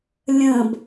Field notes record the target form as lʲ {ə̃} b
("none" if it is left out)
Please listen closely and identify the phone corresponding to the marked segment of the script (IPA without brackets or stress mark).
ə̃